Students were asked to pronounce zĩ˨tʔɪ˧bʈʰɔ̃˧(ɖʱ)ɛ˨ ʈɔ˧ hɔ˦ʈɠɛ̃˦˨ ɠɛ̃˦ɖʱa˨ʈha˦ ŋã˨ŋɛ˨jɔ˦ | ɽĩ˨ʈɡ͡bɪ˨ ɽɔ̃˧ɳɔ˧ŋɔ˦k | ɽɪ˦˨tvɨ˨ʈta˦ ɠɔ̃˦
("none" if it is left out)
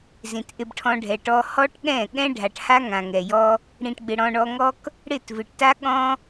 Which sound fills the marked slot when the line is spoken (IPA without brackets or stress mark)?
ɖʱ